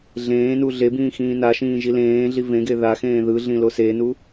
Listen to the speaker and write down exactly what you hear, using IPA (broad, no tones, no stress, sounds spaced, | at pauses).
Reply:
ɮ ẽː n u ɮ e b ĩː x ĩː n a ʃ ĩː ʒ i l ẽː ɮ i v ẽ ɡ e ð a x ẽː ð ɯ ɮ ĩ l o s e n u